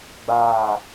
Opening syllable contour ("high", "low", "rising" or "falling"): falling